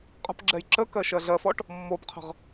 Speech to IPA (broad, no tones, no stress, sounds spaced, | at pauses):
qʼ ə̤ p ɡ͡ǁ ɛ j ǁ ə k ɜ ʃ ɜ ɮ ɜ f ɔ ʈ | mː o p qʰ ə̤ ʁ